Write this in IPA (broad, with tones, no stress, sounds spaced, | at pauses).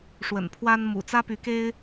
ʂ w ə̰˨˩ n pʰ w a˦ n m ṵ˨˩ t͡s ä˦ p y˨˦ k e˦ ɪ̯